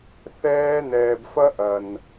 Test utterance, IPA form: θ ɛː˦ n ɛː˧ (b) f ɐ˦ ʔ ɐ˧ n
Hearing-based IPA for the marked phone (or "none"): b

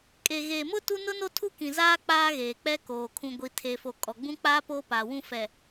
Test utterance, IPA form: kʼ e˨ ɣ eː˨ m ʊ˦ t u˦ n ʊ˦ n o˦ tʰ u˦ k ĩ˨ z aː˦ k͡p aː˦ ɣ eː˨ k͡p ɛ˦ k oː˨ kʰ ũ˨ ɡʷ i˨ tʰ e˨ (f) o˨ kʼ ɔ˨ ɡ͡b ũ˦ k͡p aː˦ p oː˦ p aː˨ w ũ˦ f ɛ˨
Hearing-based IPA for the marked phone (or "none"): f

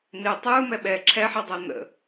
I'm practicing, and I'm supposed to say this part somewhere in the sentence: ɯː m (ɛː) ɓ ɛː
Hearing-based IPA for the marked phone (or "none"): ɛ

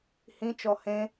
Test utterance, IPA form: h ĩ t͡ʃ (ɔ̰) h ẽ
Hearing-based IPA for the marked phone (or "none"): ɔ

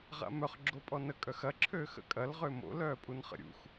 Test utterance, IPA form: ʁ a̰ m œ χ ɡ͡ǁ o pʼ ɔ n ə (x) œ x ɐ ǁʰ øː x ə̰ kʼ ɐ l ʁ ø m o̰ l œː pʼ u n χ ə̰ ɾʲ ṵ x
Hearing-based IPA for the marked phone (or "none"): kʼ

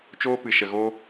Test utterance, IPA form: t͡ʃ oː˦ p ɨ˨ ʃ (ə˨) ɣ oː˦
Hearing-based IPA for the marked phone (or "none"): ə˨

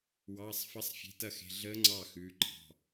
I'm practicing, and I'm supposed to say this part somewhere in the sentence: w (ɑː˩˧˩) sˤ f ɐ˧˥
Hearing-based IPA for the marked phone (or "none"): ɑː˩˧˩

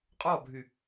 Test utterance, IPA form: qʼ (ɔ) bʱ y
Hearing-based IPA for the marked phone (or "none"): ɔ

